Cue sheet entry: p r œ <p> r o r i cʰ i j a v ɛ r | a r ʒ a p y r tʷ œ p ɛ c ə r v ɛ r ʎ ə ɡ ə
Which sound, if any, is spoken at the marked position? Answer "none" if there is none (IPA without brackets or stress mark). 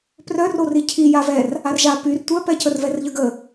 none